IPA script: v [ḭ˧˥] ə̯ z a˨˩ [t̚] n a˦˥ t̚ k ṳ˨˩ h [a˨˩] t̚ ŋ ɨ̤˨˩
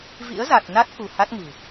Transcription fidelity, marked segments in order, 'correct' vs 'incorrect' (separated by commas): correct, correct, incorrect